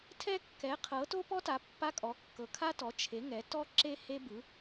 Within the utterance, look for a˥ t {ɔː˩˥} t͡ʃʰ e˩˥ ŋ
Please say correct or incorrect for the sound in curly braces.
incorrect: ɔ˩˥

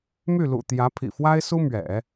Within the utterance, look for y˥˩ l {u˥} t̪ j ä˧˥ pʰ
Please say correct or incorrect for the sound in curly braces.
incorrect: ṵ˨˩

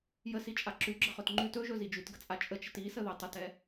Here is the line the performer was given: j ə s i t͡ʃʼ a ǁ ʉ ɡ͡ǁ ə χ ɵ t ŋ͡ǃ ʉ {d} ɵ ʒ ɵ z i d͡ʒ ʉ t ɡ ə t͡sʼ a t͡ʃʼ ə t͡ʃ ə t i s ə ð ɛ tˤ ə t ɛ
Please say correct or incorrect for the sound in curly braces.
incorrect: t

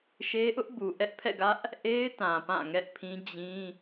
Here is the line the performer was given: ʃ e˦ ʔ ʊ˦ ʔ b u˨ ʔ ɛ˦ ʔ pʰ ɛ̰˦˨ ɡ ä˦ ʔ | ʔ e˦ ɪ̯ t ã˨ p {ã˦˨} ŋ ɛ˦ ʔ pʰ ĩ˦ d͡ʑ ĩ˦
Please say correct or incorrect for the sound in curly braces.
correct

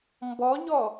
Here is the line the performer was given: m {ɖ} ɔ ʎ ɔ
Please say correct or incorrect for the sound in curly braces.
incorrect: b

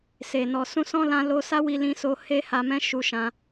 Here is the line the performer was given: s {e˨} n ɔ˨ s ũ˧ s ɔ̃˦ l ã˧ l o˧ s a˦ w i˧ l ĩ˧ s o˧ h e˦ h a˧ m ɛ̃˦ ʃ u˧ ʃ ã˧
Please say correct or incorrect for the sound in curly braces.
correct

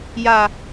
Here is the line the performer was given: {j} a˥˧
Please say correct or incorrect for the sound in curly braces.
correct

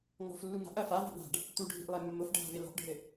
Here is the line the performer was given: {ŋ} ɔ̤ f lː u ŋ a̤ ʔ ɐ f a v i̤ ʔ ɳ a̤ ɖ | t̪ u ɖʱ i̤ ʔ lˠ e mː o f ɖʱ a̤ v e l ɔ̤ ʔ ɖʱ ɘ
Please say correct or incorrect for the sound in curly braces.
correct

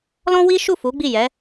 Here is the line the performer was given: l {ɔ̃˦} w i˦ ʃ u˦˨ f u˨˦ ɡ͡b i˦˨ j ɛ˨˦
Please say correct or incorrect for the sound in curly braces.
correct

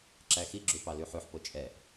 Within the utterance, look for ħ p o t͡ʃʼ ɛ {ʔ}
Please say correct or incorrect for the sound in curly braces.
correct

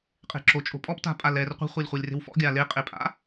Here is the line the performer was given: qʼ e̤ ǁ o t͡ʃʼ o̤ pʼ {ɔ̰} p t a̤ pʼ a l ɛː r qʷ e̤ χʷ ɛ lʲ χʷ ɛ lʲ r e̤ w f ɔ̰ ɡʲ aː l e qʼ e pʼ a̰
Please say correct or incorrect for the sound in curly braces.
incorrect: ɔ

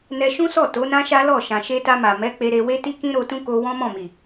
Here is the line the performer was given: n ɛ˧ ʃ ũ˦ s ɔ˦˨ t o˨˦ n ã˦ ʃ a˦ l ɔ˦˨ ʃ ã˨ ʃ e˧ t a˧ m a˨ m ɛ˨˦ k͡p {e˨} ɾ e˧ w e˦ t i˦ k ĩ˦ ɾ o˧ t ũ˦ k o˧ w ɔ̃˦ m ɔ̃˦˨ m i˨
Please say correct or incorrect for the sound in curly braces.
incorrect: e˧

